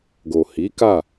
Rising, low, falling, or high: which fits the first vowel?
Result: low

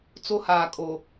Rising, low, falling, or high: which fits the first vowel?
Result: high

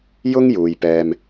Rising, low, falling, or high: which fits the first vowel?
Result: high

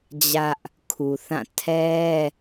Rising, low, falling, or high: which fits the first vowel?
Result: high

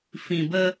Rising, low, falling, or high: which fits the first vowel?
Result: low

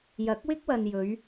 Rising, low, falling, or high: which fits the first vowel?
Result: rising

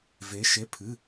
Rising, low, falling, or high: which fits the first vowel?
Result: rising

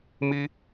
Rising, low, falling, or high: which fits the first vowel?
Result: high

